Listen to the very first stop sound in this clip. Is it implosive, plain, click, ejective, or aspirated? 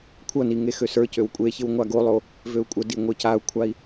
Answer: aspirated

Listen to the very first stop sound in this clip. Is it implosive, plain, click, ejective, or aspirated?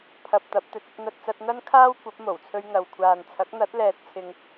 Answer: aspirated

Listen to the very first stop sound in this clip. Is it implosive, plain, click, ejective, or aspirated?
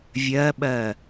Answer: implosive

